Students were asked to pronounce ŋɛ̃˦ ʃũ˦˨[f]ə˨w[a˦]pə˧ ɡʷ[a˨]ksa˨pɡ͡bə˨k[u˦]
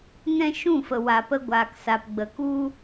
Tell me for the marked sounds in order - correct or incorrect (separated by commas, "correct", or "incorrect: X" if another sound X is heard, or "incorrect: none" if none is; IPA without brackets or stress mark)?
correct, incorrect: a˨, incorrect: aː˨, correct